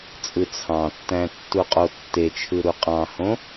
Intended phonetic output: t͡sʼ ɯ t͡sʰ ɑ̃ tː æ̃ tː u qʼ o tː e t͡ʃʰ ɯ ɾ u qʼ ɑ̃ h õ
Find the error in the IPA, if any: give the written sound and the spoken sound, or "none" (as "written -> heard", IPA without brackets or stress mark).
none